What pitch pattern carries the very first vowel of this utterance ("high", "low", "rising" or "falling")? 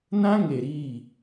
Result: high